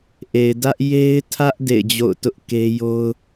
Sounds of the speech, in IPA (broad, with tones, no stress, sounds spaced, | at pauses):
ʔ e˨ ɪ̯ d ä˦ ʔ j e˦ ɪ̯ tʰ ä˦ ʔ d ḛ˦˨ ɪ̯ d͡ʑ o̰˦˨ ʊ̯ t ʊ˦ ʔ k e˦ j o˦ ʊ̯